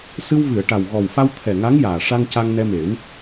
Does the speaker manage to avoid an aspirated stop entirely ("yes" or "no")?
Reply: no